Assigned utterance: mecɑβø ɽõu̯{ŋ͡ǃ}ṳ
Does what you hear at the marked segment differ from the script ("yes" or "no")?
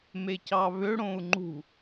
no